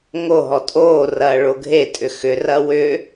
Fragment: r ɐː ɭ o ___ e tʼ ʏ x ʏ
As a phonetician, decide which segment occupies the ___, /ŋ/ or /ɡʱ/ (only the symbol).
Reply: ɡʱ